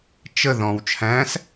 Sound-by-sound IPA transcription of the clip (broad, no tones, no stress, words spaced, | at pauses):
t͡ʃə ðɔ̃w t͡ʃʰæ̃s